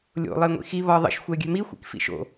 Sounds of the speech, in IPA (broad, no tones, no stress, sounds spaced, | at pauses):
lʲ o̰ lˠ e ŋʷ ḭ x i β ɒ ðˤ ə̰ ʃ xʷ ɛ ɡʲ ɛ̤ m i xʷ ḭ k f ḭ ʃ o̰